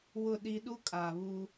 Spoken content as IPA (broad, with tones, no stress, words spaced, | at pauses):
wʊ˦˨ ɗi˦ ɗu˦kʼaː˨ βu˦